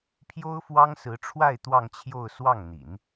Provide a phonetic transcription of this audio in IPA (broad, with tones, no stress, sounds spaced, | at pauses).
pʰ j o˥ ʊ̯ f w ɑ˥ ŋ s ɹ̩˧˥ ʈ͡ʂʰ w a˥˧ ɪ̯ t̪ w ɑ˥˧ ŋ t͡ɕʰ j o˥˧ ʊ̯ s w ɑ˥˩ ŋ n̪ ḭ˨˩˦ n